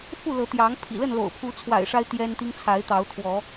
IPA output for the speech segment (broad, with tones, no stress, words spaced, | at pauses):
fu˥˨lɤ˨˦t̪jɑ˨˦ŋpʰḭ˨˩ lə˥˨nlo̰˨˩ʊ̯pʰu˨˦t͡sʰwa̰˨˩ɪ̯ ʂa˦ɪ̯ t̪jɛ˦nt̪i˦ŋ t͡sʰa˨˦ɪ̯t̪ɑ˨˦ʊ̯t̪ʰwɔ˨˦